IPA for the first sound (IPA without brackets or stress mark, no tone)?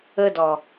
ə